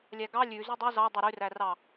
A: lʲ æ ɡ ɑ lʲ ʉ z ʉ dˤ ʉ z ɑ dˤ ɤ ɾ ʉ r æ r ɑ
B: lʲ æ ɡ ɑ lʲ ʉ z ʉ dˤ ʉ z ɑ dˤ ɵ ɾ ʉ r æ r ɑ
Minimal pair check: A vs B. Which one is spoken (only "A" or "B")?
B